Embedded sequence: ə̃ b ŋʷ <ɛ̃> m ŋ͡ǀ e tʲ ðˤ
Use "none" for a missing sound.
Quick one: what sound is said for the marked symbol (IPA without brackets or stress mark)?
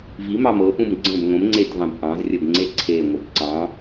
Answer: ə̃